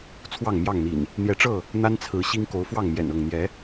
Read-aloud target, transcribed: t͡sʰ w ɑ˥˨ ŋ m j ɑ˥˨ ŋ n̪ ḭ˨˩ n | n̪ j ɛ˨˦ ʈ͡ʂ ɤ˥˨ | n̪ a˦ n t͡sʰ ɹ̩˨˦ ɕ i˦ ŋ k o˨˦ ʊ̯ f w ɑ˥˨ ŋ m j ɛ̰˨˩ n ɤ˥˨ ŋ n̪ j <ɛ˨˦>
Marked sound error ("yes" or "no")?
no